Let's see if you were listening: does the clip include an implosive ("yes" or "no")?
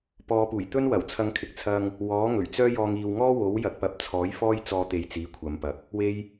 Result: no